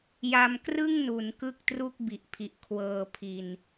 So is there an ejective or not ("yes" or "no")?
no